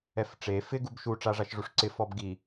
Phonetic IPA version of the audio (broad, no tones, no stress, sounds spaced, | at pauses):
ɛ f ʈ͡ʂ e f ɪ ɡ u b ʃ u ʈ͡ʂ a ʐ a ʃ ʐ u ʂ ǀ ɪ f ɔ b ɡ i